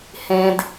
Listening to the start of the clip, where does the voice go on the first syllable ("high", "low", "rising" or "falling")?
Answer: high